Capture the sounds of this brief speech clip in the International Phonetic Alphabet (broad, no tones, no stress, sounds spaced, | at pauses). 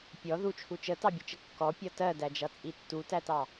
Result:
pʲ ɔ ð u t͡ʃʰ u t͡ʃ ə t ɑ bʲ ʊ t͡ʃ ə kː ɔ pʲ ɒ t ɜ d æ d͡ʒ ʌ t͡sʼ i tː u t æ t ɑ